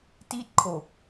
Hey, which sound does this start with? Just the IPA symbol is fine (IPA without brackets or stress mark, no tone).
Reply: t